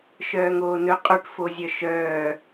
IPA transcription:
ʃœːŋoːnɵ qʼoʈfozʲœ ʃœː

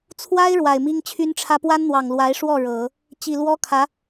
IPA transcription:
t͡sʰwa˥ɪ̯ ɻwa˨˩ɪ̯mi˥ŋt͡ɕʰy˥nʈ͡ʂʰä˥ pwa˥nn̪wɑ˨˩ŋ lwa˧˥ɪ̯ʂwɔ˥˩ ɻɤ˨˩˦ | t͡ɕi˨˩lwɔ˥kʰä˧˥

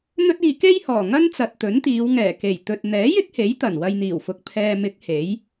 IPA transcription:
n̪ɵ˥t̚iː˧ ke˥jhɔː˨˩ ŋɐ˥nt͡sɐ˨t̚t̪ɵ˨˥nt̪iː˨˧w ŋɛː˨˩ke˨˩jt̪ɵ˨t̚ n̪ɛː˨˥jɪ˥k̚he˨˥j t̪ɐ˨˩nwɐ˧jn̪iː˨˩wfʊ˨k̚ pʰɛː˨mɪ˨˥k̚ he˨˥j

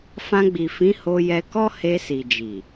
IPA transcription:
fã˧ɡ͡bi˨ fĩ˨˦ho˧jɛ˧kɔ˦ he˧si˨d͡ʒi˨

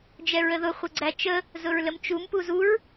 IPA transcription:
d͡ʒɛɹəðʊ χʷɘɡ͡ǀæt͡ʃə | zʊɹləmt͡ʃum puzuɹ

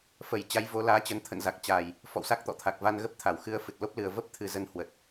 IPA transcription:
fə˧˩j t͡ɕa˨˦jvo˨˦laː˨˦t͡ɕə˨˦n t̪ʰə̰˧˨nza˨˩k̚t͡ɕaː˨˩j | fɔ̰˧˨wsa˦˥k̚t̪ɔ̰˧˨t̪ʰa˨˩k̚ va˨˩n ɣə˦˥p̚ t̪ʰa˧˩wxɨ˧ə̯ fɨ˨˩t̚lo˦˥p̚lɨ˨˩ə̯ və˦˥p̚ t̪ʰɨ˨˩zə˨˦nhwə˨˩t̚

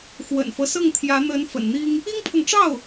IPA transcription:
xwə̰˨˩nfɤ˦sɤ˥˩ŋt̪ʰjä˧˥ n̪ə˧˥n fə̰˨˩nn̪i˥ŋ | i˥ŋpʰɤ˨ŋʈ͡ʂɑ˥˩ʊ̯

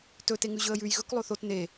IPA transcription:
tɵ teŋʉʑɵə̯jʉj ɣɵk lˠoθot ne

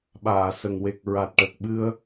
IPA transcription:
ɓaː˨˩˨ sə˨˩ŋwe˨˩k̚ ɹa˨˩t̚ʈə˨˩k̚ ɓɨ˧ə̯

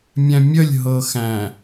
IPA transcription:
mʲæ̃mʲəlʲ ɦɤxæ̃

